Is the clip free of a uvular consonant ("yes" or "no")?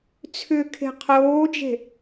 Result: no